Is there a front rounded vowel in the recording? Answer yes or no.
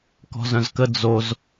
yes